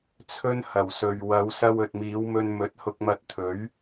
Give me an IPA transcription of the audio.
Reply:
t͡sʰ ɵ˥ n h ɐ˨˩ w s ɵ˨ ɥ w ɐ˨˧ w s ɐ˧ w ɵ˨ t̚ m iː˨˧ w m ɵ˧ n m ɵ˨˥ t̚ h ʊ˧ k̚ m ɐ˧ t̚ t̪ʰ ɵ˨˥ ɥ

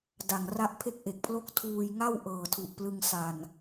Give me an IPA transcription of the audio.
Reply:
d a˨˩ ŋ r a˥˩ ʔ pʰ e˥˩ k̚ ʔ e˨˩ k̚ pʰ l o˥˩ k̚ tʰ uː˧ j ŋ a˥˩ w ʔ ɤː˨˩ tʰ u˨˩ ʔ p l ɯ˧ ŋ s a˨˩ n

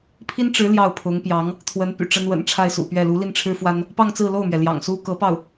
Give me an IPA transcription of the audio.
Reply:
pʰ i˥ n ʈ͡ʂ ɻ̩˧˥ l j ɑ˥˩ ʊ̯ pʰ ʊ˧˥ ŋ p j ɑ˧˥ ŋ | t̪ʰ w ə˧˥ n p y̰˨˩ ʈ͡ʂ ə˥ n w ə̰˨˩ n ʈ͡ʂʰ a˥˩ ɪ̯ s ṵ˨˩ p ɥ ɛ˥˩ l u˧˥ l i˥˩ n ʈ͡ʂʰ ɻ̩˥ f w a˥ n | p ɑ˥˧ ŋ t͡s ɹ̩˥˧ l o˥˩ ʊ̯ m ɥ ɛ˩ l j ɑ̰˨˩ ŋ s u˥ k ɤ˧˥ p ɑ˥˩ ʊ̯

